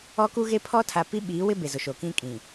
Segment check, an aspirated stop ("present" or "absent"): present